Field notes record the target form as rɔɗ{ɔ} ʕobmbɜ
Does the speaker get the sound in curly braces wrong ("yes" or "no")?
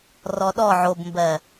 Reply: no